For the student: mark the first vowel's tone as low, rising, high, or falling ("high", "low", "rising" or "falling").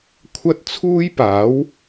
high